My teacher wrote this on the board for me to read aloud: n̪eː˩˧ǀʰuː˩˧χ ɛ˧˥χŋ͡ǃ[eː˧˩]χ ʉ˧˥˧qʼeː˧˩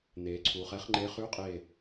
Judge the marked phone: incorrect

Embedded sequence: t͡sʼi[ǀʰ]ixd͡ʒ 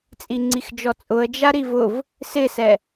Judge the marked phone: incorrect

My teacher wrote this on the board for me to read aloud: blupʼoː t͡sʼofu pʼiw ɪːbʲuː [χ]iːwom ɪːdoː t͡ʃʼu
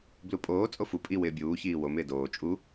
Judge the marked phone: incorrect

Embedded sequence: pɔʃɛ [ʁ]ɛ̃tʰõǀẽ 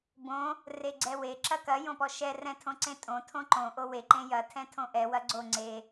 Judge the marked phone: incorrect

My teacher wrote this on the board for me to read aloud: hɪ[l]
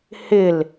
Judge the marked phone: correct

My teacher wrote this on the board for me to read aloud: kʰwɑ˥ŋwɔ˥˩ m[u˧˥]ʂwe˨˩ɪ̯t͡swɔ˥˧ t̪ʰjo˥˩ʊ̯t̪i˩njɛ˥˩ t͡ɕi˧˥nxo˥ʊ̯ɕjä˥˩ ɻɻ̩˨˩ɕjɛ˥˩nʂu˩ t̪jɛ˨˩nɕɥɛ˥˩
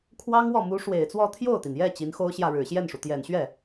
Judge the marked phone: correct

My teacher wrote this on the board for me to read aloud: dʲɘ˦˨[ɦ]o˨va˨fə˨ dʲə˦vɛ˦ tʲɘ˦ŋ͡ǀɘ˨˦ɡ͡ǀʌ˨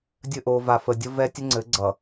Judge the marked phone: incorrect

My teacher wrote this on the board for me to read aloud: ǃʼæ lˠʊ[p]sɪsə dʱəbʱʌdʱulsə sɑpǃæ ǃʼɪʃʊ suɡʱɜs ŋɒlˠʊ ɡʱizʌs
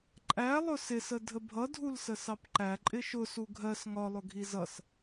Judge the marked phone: incorrect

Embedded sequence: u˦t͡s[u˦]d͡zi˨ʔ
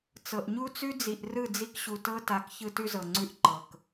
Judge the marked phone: incorrect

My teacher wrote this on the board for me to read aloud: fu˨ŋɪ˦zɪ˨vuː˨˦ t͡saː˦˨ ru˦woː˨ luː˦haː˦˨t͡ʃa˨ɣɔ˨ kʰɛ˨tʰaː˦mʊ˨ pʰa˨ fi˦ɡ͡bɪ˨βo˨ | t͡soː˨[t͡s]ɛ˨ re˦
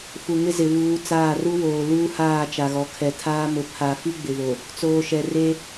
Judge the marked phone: incorrect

